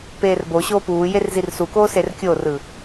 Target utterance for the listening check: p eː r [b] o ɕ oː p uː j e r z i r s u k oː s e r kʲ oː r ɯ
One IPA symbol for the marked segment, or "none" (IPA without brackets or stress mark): b